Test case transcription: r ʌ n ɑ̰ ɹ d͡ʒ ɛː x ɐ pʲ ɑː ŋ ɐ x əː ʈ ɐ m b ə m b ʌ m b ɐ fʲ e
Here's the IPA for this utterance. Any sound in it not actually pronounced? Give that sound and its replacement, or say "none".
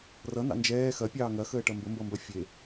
ɹ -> n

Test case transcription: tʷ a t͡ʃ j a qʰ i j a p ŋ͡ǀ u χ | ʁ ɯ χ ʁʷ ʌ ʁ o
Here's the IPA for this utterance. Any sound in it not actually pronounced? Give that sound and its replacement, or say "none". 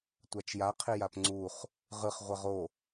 none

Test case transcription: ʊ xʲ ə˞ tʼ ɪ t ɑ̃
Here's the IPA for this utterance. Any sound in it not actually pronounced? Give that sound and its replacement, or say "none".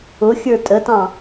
ɪ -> ə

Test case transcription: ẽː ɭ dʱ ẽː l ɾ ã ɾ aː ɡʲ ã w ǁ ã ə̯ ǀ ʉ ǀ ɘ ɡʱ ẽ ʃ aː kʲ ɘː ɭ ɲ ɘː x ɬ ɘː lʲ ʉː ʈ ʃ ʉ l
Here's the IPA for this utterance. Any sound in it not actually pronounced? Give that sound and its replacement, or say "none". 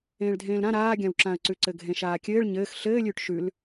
none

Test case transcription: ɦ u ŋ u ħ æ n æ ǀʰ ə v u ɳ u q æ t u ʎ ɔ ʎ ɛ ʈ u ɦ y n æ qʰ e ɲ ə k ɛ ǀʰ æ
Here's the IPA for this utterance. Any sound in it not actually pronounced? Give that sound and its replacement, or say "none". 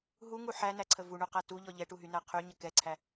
e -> y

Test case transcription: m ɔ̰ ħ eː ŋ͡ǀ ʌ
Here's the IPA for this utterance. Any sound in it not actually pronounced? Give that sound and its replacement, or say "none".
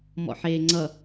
none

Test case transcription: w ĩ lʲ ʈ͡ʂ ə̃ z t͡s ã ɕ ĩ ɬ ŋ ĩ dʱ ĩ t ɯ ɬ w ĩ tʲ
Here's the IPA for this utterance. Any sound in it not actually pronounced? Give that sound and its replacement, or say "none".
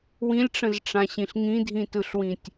t͡s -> ʈ͡ʂ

